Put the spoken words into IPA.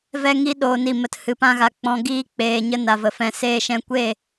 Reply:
v ɛ˦ ŋ i˦ ɗ oː˧ n i˦˨ m ə˧ t h ɨ˧ p ã˦ ɣ a˧ k͡p ɔ̃˧ ɡ iː˦ k͡p eː˧ ɲ ə˦ n a˨ v ə˨ f ɛ̃˧ s eː˧ ʃ ɛ̃˧ kʷ e˦˨

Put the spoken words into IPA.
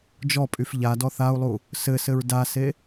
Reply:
d͡ʒ ɔ pʼ y f ʎ a d ɔ θ a u̯ lˠ u | s ɘ s ɘ ɹ d a s e

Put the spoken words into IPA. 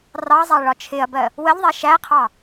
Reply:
r ɑ zˤ æ ɭ ɒ t͡ʃʰ ɪ ɐ̯ b ɜ | w ə ʎ ðˤ ɛ ʃ æ qʰ ɑ

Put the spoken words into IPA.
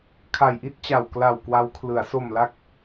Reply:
kʰ a˨˩ j ʔ i˥˩ t̚ t͡ɕ a˨˩ w k l a˨˩ w k w a˦˥ w kʰ l ɯ˩˦ a̯ s o˨˩ m l a˦˥ k̚

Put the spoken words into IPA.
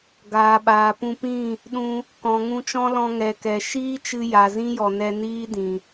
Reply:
ɡ aː˨ ɓ aː˨ p ũ˧ p ĩ˦˨ | ɗ ũ˧ | k ɔ̃˨ ŋ ũ˧ t͡ʃ ɔ̃˦ l ɔ̃˧ ŋ ɛ˨ k ɛ˨ ʃ iː˦ t͡ʃ ɨ˧ j a˨ z ĩ˦ j ɔ˨ n ɛ˧ n iː˦ d ĩ˨

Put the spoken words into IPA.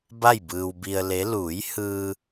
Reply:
b a˥˨ j b ɯː˧ w b i˧ ə̯ l e˧˥ l uː˩˧ j h ɯː˧

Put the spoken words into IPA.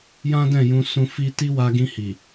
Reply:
j ã˦ d ɛ̃˦˨ j ũ˧ s ũ˧ f i˦ t i˦ w a˧ ɡ ĩ˧ h i˨

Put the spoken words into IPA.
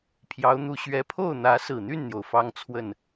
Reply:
pʰ j ɑ˧˥ ʊ̯ n̪ u˧˥ ɕ ɥ ɛ˧˥ pʰ o˥˩ ʊ̯ n̪ ä˧˥ s ɹ̩˨˩ n̪ y˥˩ n n̪ j o˩ ʊ̯ f ɑ˥ ŋ t͡sʰ w ə˥˩ n

